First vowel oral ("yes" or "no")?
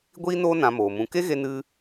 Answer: yes